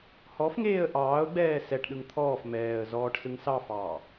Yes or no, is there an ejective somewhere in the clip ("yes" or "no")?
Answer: no